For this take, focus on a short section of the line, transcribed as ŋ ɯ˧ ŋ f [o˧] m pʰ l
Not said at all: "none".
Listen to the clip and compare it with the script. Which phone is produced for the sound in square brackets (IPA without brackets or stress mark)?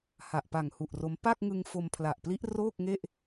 o˧